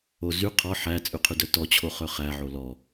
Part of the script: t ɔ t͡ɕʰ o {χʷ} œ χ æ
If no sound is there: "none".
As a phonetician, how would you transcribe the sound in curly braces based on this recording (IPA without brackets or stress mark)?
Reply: χ